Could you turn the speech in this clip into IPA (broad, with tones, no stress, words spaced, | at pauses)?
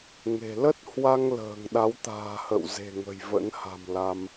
ŋe̤˨˩ lə˦˥t̚hwa˧ŋ lə̤ː˨˩ŋɗa˨˦wt̪a̤ː˨˩hə̰˧˨w ze̤˨˩ŋə̤˨˩j və̰˧˥nha̤˨˩mla˧m